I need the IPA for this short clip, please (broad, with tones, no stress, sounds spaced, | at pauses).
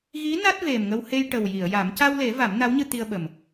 ɣ i˧˥ n a˦˥ t̚ v e˨˩ m ŋ ə˧ w h e˧ j ʈ ə˨˩ w j i˨˩˨ ə̯ j a˨˩˦ m c a˧ w l e˨˩˦ v a˨˩˦ m n a˧˥ w ɲ ɨ˧ t̪ i˧ ə̯ ɓ ə˨˩ m